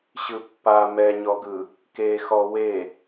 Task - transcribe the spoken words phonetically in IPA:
ɕ ɯ pː a m ɛ ɲ ɔ ɡ ɯ | k e x ɔ w e

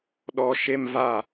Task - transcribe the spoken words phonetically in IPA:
ɗ ɔ˧ ʃ e˦ m v a˦˨

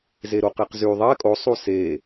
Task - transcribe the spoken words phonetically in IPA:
z e ɾ o q e q z y ðˤ ɛ kʼ o sˤ u s e

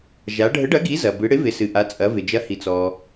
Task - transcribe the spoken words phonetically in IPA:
ʒ a˩˧ ɖʱ ə˨˥ ɖ ɐ˨˥ ɡ i˨˥ z ɐ˩ b ɨ˩˧ ɽ ɪ˨˥ v ɪ˩˧ s ɨ˩ ʔ a˩˧ t͡sʼ ɐ˩˧ v ɪ˩ d͡ʒ ɐ˨˥ h i˩ t͡s ɔ˩

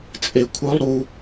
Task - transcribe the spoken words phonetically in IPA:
t͡sʼ e kʷʰ œ lˠ ɾ u

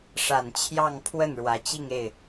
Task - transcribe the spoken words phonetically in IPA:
ʂ a˨˩ n t͡ɕʰ j ɑ˥˧ ŋ pʰ w ə˥˩ n ɻ w ä˧˥ t͡ɕ i˥˧ ŋ e˥˩ ɪ̯

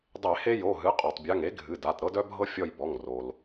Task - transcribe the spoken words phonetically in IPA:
dˤ e˧˩˧ h e˦ j o˩˧˩ ɦ ɨ˩˥ qʼ o˩ tˤ bʲ a˩˧˩ ŋ e˩˥ ɡʱ ɨ˩˧˩ d a˩˧˩ t ɾ ɤ˦ d œ˦ bʱ ɤ˦ fʲ ɔ˦˨ j b ɔ˩˧˩ ŋ r o˩ l

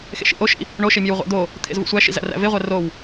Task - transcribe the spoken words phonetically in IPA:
x ḛ ʃ ḭ ʔ o ʃ ḭ | ɳ o ʃ e mʲ e w ʁʷ æ̰ d̪ o | t̪ʰ ḛ z v ṵ sʷ æ ʃ ḭ z æ̰ r æ̰ v e ʁʷ æ r o w

